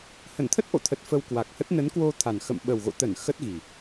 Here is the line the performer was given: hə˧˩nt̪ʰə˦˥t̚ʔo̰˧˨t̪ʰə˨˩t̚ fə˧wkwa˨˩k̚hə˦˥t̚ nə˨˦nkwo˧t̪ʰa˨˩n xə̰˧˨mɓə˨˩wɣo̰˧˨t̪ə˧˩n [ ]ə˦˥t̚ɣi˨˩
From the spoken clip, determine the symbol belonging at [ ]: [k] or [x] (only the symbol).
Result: x